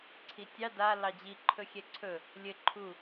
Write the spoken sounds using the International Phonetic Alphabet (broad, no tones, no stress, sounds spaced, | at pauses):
ǀʰ i tʲ ɑ d a l ɑ d͡ʑ i ǃʰ ɵ xʲ ɛ ǀʰ ɵ | lʲ ɘ ǃʰ u